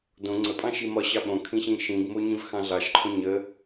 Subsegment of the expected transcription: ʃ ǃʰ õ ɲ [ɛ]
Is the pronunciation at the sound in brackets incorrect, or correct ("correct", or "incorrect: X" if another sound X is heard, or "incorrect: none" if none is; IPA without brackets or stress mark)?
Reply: incorrect: ə